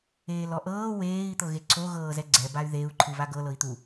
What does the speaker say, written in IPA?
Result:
eːlɔʔɤː weːi̯ t̪ɤɣeǀʰo ɣɤːzɛɡ͡ǀɛ bay̯ðeu̯ ǃʰɯβaɡɤ lɤi̯t̪u

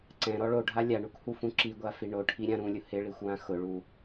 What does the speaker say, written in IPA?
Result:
ǀɛ̃ɾɔ ɭoɖʱa lʲaɳukhufũ ǁiɡʷafi ɳoʈʰiɾʲã ɾũlʲʊ hɪɭixʷwã xʊɭu

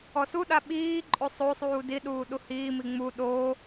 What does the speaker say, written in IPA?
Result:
ɔsuɗa ɓiːǃʼo sˤosˤuː diɗuː ɗuhiːmi ŋ͡mu ɗoː

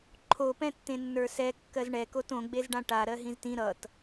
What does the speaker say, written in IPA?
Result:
ǃʰopɛ̃tːẽ nːə˞sɛ kːɜzɳɛkot õɡ͡bezɖã ʈa ɾɜɦĩztĩ ɾʌt

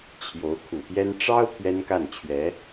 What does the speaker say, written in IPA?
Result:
t͡ɕʰjo˧˥ʊ̯kʰu˨˩pjɛ˥n ʈ͡ʂɑ˥ʊ̯ pʰɥɛ˥nka˥˩nt͡ɕʰɥɛ˧˥

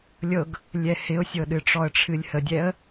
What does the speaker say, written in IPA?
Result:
lʲɤɡ | lʲɛhɪʊ̯sʲɤɗɨ ʈ͡ʂɔə̯ʈ͡ʂʰɨlʲhədʲɛə̯

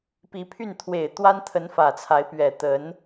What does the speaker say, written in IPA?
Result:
pi˧˥pʰy˥˩n t̪ʰwe˨˩ɪ̯t̪wa˥nt̪ʰə˧˥n fä˨˩t͡sʰa˧˥ɪ̯pɥɛ˨˩ t̪ə˧˥n

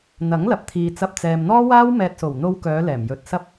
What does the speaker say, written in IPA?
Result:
n̪ɐ˨˥ŋlɐ˨˥p̚t̪ʰiː˨t͡sɐ˧p̚ t͡sɛː˨mn̪ɔː˥waː˥w mɛː˧t̚so˨˩w n̪o˧wkœː˨˧ lɛː˨˩mjɵ˨˥t̚sɐ˥p̚

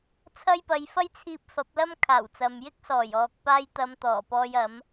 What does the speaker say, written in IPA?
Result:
t͡sʰɐ˥jpɐ˧j fɐ˥jt͡sʰiː˧p̚ fɐ˨˥p̚lɐ˥mkʰaː˨˩w t͡sɐ˨mjɪ˥k̚ sɔː˨˩jɔː˨k̚ paː˧jt̪ɐ˨˧m t̪ɔː˨˩pɔː˧jɐ˨˥m

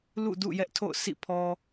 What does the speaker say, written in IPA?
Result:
lṵ˦˨dṵ˦˨ jɛ˦ʔtʰo̰˦˨ʊ̯ sḭ˦˨ pʰɔ˨

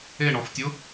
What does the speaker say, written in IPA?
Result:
e ɳɔftʲʊ

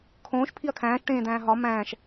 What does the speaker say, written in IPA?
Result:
kʰõːʃ pʰiɐ̯kʰæ̃ːʃ ʈẽːd̪æ̃ːɦɒ mæ̃ːʃ

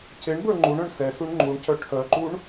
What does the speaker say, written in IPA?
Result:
ceɳbə˞ ŋ͡ǃuɳœ̃ɳ sɛsuɳ ŋ͡ǃuɳcœ ʈʰœǃuɳ

